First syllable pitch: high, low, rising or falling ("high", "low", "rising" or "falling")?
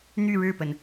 falling